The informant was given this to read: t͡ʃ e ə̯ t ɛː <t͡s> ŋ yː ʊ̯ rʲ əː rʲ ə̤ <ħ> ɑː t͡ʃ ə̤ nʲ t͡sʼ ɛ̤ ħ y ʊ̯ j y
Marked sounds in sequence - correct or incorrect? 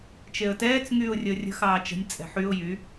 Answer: correct, incorrect: x

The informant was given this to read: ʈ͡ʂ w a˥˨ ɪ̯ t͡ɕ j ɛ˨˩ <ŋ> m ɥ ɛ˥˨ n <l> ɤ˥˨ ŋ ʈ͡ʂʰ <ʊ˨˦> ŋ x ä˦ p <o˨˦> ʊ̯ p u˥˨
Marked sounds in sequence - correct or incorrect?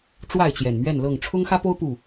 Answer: incorrect: n, correct, incorrect: ʊ˦, incorrect: o˦

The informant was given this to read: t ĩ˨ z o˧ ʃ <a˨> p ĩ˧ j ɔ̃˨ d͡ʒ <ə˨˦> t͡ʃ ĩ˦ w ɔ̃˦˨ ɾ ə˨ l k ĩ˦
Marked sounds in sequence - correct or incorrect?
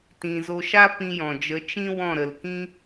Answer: incorrect: a˦, correct

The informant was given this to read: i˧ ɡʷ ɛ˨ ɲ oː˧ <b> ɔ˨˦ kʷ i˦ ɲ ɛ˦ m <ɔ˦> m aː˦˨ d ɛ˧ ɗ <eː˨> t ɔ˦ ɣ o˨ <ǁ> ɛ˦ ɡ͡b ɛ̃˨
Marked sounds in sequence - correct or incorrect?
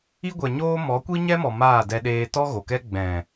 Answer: incorrect: m, incorrect: ɔ˨, incorrect: eː˧, incorrect: k

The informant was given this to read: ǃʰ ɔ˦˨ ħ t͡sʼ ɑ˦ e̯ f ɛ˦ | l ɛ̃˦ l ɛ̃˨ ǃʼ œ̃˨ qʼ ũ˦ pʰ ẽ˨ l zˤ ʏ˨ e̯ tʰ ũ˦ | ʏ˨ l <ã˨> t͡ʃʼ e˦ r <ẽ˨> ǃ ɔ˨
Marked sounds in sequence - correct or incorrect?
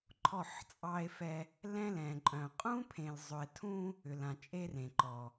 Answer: correct, correct

